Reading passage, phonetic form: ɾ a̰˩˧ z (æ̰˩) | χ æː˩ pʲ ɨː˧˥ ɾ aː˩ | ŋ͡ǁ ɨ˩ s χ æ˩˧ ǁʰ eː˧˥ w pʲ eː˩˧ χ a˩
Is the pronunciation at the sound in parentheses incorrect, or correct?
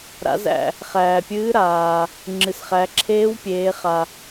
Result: correct